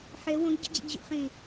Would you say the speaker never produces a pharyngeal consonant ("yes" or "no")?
no